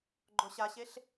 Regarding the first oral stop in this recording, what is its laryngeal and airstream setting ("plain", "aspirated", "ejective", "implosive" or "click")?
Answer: click